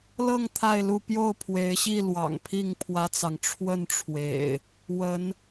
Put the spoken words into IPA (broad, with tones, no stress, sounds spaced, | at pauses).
l ɤ˥˨ ŋ t̪ʰ a˥˨ ɪ̯ l u˥˨ p j o˥˨ ʊ̯ pʰ w e˨˦ ɪ̯ ɕ i˥˨ l w ɑ̰˨˩ ŋ pʰ i˥˨ ŋ pʰ w ä˦ t͡s ɑ˨ ŋ ʈ͡ʂʰ w ə˥˨ n ʈ͡ʂʰ w ḛ˨˩ ɪ̯ | w ə˨˦ n